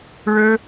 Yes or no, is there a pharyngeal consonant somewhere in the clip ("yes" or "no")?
no